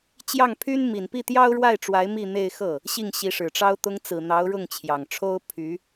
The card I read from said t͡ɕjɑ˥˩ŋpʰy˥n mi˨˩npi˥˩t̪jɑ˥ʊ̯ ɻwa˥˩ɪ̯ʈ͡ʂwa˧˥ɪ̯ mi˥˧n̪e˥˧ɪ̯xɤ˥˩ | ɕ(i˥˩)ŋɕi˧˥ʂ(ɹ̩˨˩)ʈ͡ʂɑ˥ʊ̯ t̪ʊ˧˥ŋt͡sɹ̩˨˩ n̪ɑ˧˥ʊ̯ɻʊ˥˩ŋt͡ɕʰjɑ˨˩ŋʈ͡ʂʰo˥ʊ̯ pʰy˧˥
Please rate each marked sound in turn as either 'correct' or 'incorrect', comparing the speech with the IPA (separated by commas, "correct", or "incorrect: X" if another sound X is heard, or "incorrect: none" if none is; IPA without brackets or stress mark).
correct, incorrect: ɻ̩˨˩